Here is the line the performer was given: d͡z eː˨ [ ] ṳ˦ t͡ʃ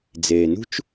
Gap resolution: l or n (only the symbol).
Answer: n